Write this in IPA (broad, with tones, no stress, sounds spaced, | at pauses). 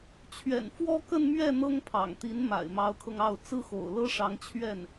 t͡ɕʰ ɥ ɛ̰˨˩ n f w ɔ˥ k ə˥˧ n m ɥ ɛ˥˩ n̪ ɤ˥ ŋ pʰ ɑ̰˨˩ ŋ t̪ i˧˥ n m a̰˨˩ ɪ̯ m ɑ˧˥ ʊ̯ kʰ ɤ˧ ŋ ɑ˥˩ ʊ̯ t͡s ɹ̩˥ x o̰˨˩ ʊ̯ l ɤ˥ ʂ ɑ˧˥ ŋ t͡ɕʰ ɥ ɛ˥˩ n